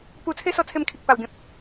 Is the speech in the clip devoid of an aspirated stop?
no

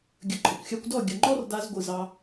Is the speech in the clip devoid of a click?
no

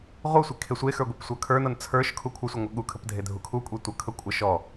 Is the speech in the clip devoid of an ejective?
no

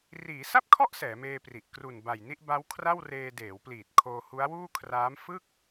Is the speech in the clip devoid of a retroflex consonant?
yes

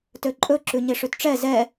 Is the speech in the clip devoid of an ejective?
no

